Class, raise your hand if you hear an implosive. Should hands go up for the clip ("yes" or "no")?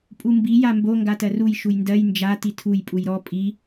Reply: no